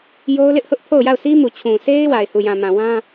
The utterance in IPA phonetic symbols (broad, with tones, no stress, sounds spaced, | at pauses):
j o˦ ʊ̯ l ɪ˦ ʔ h ʊ˦ ʔ pʰ o˦˨ ʊ̯ j a˦˨ ʊ̯ sʰ i˦ m u˨ t͡ɕʰ ũ˨ sʰ e˦ ɪ̯ w a˨ ɪ̯ h u˨ j ã˨ m ã˨ w ã˦